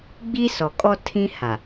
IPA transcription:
ɡ͡b i˦ s ɔ˨ kʼ ɔ˦ tʰ ĩ˦ h a˨

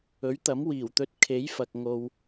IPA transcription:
ɵ˨˥ ɥ t̪ ɐ˨˥ m w iː˨˩ w t̪ ɵ˧ t̚ kʰ e˨˥ j f ɐ˨ k̚ ŋ o˧ w

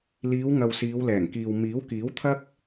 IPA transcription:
l iː˨˧ w ŋ ɐ˨ w s iː˨˧ w l ɛː˨˩ ŋ k iː˨ w m iː˨˥ w k iː˨˥ w t̪ʰ ɐ˧ k̚

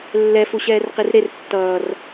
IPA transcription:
lː ɛ f u ɕ ɛː r q i r ɾ e r tː ʌː r

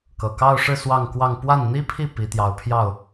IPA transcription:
k ɤ˨˩ k ɑ˥˧ ʊ̯ ʂ ɻ̩˥˧ s w ɑ˥˧ ŋ k w ɑ˥˧ ŋ p w a˥˩ n n̪ i˥ pʰ i˥˩ p i˧˥ t̪ j ɑ˧˥ ʊ̯ pʰ j ɑ˥˩ ʊ̯

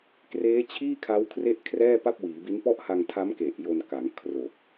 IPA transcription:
k r eː˦˥ t͡ɕʰ iː˥˩ kʰ a˦˥ w kʰ r e˥˩ ʔ kʰ r ɛː˥˩ p a˥˩ p̚ w iː˩˦ b i˦˥ n p ɔ˥˩ ʔ h a˧ ŋ tʰ a˦˥ m k e˨˩ ʔ j o˧ n k a˩˦ ŋ kʰ r o˨˩ k̚

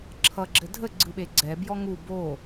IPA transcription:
ǁʰ ʌ ɡ͡ǁ ɘ dʱ ə ɡ͡ǀ ɯ ɓ e ɡ͡ǀ ɛ b j ɔ ŋ u b o

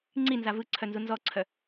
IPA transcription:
ŋ͡ǀ i n z a v ɯ ǀʰ œ n z u n z ɔ ǀʰ œ

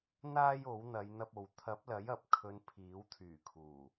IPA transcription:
n̪ aː˥ j o˨˥ w n̪ ɐ˨˧ j n̪ ɐ˧ p̚ o˨ w t̪ʰ ɐ˨˥ p̚ l ɐ˨˥ j ɐ˨˥ p̚ kʰ ɵ˨˧ n pʰ iː˨˥ w t̪ʰ yː˨˩ kʰ uː˨˩

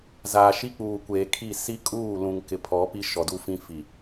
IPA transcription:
z aː˨ ʃ i˦ k͡p uː˨ kʷ eː˨ kʰ i˦˨ s i˦ kʼ uː˦˨ l ũ˨ ŋ k ɪ˨ pʰ ɔ˨˦ p i˦ ʃ ɔ˨ d u˦ f ĩ˦ f i˨

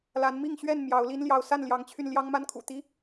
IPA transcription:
l a˨˦ n m i˥˨ ŋ ɕ ɥ ɛ˥˨ n m j ɑ˨˦ ʊ̯ l i˦ n l j ɑ˨˦ ʊ̯ s a˥˨ n l j ɑ˨˦ ŋ t͡ɕʰ y˧ n l j ɑ˦ ŋ m a˦ n kʰ ṵ˨˩ t̪ i˦

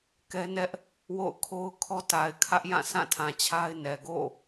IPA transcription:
k ɛ˦ n ɛ˦ ʔ | w o̰˦˨ ʊ̯ kʰ o˦ ʊ̯ kʰ ɔ˦ t a˨ ɪ̯ kʰ ä˦ ʔ j ã˦˨ s ã˦˨ tʰ ã˨ t͡ɕʰ a˦ ɪ̯ n ɛ˨ ɡ o̰˦˨

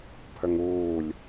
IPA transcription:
pʰ ə ŋ uː lʲ

